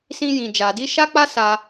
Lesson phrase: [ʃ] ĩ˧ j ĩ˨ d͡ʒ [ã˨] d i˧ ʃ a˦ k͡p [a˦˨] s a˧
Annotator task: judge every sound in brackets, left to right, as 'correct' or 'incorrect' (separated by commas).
incorrect, incorrect, incorrect